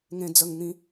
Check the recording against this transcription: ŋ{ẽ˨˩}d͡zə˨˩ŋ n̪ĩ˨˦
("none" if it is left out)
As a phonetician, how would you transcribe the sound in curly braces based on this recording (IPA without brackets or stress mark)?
ẽ˨˩